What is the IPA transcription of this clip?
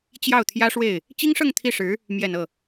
t͡ɕ j ɑ˥˩ ʊ̯ t̪ʰ j ä˥ ʂ w e˥˩ ɪ̯ | t͡ɕ i˥ ŋ ʂ ɤ˥˧ ŋ t̪ʰ i˥˩ ʂ ɻ̩˧˥ | m j ɛ˨˩ n ɤ˥˩

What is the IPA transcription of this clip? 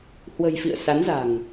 h w ə̤˨˩ j f ḭ˧˨ ə̯ s a˨˦ n z a̤˨˩ ŋ

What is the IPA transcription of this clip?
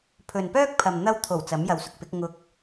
pʰ ɵ˨ n p œː˥ k̚ pʰ ɐ˨ m n̪ ɐ˧ w t̪ʰ o˨˩ w t͡s ɐ˨˥ m j ɐ˨ w s ʊ˨ k̚ p ɪ˨˥ k̚ ŋ ʊ˧ k̚

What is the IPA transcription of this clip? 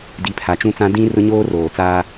d i˨˦ pʰ a˨ t͡ʃ ũ˦ t͡s ã˦ d ĩ˦ r ʊ˦ ɲ oː˦ r oː˨ t͡s aː˦

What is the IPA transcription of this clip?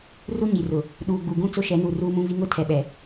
r u˦ ɲ i˨ r ʊ˨ | ɗ uː˨ ɡ͡b u˨ ɡ ũ˦ t͡s ʊ˦ ʃ ɛ˨˦ n u˨ r uː˦ m ũ˦ v i˦ ŋ ʊ˦ tʰ ɛ˨ ɓ ɛ˨

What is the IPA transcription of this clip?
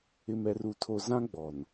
ɪ˨ m ɛ˨ r u˨ tʰ o˨ z ã˦ ɡ͡b ɔ˨ n

